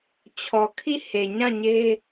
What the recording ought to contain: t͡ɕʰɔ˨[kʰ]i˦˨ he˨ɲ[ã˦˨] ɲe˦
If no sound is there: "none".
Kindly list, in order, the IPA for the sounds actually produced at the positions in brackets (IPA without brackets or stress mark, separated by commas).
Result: kʰ, ã˦˨